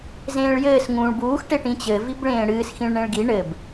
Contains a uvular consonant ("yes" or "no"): no